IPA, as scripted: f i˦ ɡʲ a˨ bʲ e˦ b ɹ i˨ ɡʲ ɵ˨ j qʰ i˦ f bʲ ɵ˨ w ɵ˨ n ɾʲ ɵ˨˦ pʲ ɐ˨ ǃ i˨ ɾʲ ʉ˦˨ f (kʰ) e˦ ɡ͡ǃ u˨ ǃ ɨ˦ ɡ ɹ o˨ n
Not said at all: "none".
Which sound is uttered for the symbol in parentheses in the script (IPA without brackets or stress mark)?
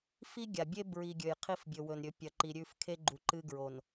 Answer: kʰ